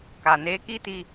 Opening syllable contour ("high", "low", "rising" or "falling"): low